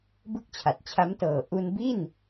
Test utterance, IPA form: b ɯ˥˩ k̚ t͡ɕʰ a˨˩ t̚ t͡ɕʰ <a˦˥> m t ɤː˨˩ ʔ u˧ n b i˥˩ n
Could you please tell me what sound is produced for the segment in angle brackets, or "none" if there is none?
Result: a˦˥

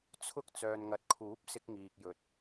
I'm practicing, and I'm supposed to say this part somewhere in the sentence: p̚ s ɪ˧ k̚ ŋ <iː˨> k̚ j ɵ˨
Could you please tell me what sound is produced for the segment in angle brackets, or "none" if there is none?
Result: iː˨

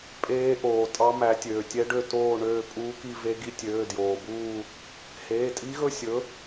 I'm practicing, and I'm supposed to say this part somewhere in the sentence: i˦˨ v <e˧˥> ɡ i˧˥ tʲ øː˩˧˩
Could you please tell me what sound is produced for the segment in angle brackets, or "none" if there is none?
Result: e˧˥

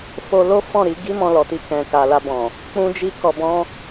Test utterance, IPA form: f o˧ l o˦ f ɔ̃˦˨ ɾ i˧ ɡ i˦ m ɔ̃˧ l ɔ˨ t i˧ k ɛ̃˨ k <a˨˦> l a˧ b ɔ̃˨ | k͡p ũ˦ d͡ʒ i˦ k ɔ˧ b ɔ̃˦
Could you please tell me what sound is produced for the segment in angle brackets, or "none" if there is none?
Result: a˨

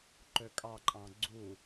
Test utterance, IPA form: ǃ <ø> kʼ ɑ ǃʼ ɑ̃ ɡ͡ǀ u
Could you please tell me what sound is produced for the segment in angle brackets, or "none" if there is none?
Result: ø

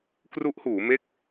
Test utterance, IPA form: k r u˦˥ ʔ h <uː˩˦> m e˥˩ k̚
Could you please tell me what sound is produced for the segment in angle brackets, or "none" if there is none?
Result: uː˩˦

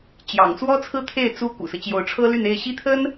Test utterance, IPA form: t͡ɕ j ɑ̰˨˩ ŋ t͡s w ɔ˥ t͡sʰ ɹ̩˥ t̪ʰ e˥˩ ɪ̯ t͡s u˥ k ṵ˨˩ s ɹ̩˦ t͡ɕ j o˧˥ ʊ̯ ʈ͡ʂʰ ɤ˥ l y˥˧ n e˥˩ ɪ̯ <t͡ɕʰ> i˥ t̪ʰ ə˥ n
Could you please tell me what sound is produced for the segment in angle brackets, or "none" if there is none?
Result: ɕ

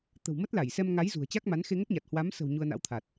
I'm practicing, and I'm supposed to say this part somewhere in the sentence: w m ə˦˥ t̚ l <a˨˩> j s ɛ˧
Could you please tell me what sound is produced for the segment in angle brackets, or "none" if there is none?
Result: a˧˩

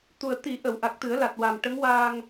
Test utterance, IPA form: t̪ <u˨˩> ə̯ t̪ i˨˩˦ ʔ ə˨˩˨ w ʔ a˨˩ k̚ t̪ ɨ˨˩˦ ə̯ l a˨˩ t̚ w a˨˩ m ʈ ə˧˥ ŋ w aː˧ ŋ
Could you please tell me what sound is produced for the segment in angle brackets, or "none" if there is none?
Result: u˨˩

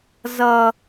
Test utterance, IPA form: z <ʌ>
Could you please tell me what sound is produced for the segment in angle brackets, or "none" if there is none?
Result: ʌ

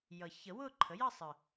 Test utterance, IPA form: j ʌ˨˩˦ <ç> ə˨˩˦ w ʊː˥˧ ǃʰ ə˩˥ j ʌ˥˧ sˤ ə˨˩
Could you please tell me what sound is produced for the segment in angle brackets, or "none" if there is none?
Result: ç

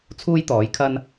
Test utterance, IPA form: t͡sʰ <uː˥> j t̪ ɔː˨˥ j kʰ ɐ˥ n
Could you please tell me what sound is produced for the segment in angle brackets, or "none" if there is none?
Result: uː˥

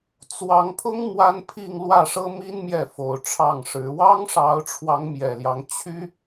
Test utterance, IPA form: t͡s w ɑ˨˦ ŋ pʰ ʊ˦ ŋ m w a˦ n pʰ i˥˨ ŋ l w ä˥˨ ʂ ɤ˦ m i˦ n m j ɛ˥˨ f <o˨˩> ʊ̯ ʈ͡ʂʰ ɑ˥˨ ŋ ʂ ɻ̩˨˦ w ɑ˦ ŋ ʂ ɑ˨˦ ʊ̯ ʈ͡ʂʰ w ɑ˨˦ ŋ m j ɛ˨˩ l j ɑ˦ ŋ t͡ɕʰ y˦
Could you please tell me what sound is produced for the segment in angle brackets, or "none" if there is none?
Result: o˨˩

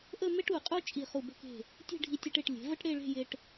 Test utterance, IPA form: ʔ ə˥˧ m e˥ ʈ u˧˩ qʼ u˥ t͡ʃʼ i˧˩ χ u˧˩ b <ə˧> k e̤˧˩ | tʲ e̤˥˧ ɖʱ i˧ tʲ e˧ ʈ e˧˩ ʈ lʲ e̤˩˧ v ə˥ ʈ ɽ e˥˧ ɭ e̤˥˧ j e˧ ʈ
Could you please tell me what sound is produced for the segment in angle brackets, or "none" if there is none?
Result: ə˧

